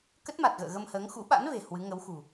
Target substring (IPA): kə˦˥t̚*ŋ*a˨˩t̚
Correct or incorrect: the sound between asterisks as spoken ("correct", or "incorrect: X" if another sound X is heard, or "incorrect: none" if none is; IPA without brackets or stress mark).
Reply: incorrect: m